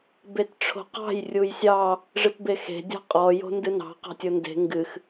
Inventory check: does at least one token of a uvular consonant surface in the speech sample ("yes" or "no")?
yes